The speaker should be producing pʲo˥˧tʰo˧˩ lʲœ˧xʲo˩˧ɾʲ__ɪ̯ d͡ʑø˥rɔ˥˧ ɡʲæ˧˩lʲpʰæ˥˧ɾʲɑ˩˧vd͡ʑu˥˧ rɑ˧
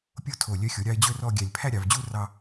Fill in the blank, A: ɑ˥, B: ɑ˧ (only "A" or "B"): B